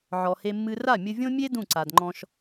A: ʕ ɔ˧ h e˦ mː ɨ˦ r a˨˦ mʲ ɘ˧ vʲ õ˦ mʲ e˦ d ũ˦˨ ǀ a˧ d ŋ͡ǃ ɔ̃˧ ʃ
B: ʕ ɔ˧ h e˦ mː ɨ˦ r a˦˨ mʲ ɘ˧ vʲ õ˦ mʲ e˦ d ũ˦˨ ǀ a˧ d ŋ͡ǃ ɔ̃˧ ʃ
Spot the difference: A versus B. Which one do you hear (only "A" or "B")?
B